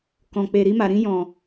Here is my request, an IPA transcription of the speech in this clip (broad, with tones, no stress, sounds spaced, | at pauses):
k ɔ̃˨ k͡p e˨ ɾ i˧ m a˨ ɾ ĩ˧ j ɔ̃˨